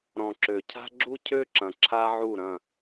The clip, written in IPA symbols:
ɾ ɔ̃˨ ǁ ø˨ cʰ a̤˦ ɡ͡ǁ u˦ cʰ ø˦ ǁ ɐ̃˨ ǁʰ a˦ ʕ u˦˨ ɾ ɐ̃˦˨

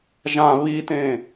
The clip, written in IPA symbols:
ʒ ã β i t ẽ

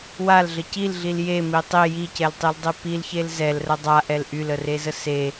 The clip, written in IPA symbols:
w a l ɮ ə c i l ɮ i l j e m i tˤ i j i c ɛ l tˤ i l dˤ e p i l ç e l z ɛ l r ə dˤ a ʔ ɛ l ʔ y l ə r e z ə s e

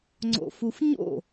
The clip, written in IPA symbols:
ŋ͡ǀ o̰ f u f ɲ o̰

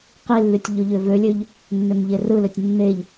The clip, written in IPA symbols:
q i lː y tʲ ʎ o ʎ ø v ø lʲ ø ʎ | nː ø m ʎ e r ɯ l ø tʲ nː e ʎ

